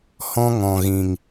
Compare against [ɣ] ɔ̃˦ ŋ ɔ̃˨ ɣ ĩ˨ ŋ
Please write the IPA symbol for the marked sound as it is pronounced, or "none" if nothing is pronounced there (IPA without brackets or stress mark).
h